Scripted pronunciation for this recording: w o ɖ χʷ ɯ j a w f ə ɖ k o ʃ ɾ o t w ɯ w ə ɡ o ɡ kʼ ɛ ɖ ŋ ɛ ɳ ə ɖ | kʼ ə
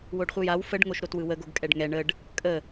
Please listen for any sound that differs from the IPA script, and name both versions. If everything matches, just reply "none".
k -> ŋ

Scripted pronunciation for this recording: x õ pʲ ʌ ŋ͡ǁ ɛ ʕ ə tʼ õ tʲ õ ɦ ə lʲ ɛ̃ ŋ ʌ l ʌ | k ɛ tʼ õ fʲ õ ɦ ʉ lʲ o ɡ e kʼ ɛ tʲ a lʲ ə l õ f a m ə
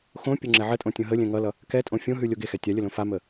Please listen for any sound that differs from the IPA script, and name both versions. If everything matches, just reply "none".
kʼ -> x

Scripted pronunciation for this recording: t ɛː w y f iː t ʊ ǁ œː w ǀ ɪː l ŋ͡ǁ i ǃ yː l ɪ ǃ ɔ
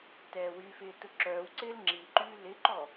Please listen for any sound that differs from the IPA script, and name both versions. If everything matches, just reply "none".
iː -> ɪː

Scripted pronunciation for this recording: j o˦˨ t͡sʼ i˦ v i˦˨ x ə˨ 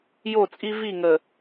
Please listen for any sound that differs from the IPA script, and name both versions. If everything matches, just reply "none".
x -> ŋ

